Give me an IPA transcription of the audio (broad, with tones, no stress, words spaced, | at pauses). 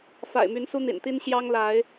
fa̰˨˩ɪ̯my˨˦n su˦n̪ḭ˨˩nt̪i˦n ɕjɑ˦ŋla˨˦ɪ̯